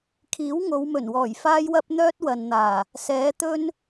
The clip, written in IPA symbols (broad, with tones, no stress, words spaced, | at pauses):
kʰiː˨˥wŋo˨˧wmɵ˨˩nwɔː˨˩j faː˥jwɐ˥p̚ n̪œː˥t̚wɐ˨nn̪aː˨˩ | sɛː˨˥t̪ɵ˥n